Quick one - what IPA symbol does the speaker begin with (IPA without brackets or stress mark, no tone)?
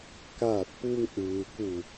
k